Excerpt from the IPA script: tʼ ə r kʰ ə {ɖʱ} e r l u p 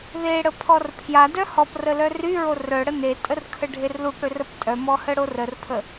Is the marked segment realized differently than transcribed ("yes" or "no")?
no